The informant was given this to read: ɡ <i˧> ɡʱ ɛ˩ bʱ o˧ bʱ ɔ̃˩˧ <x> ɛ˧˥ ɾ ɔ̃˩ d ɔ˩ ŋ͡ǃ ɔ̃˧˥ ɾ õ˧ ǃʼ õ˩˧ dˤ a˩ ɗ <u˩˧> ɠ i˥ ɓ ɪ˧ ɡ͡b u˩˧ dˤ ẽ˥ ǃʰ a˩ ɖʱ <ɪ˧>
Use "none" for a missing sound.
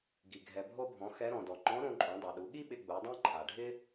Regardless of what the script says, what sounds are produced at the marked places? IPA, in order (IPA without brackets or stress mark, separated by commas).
i˩, x, u˩˧, ɪ˥